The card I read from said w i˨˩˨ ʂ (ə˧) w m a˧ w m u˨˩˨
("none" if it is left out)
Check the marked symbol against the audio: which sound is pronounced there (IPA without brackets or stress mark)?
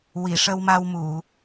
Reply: ə˧